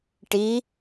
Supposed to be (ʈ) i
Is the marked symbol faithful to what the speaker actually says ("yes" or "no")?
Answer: yes